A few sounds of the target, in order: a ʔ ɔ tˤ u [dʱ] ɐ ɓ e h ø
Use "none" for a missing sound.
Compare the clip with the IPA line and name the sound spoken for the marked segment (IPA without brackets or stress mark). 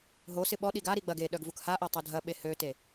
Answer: dʱ